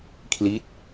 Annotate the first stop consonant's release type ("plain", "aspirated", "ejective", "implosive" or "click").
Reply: aspirated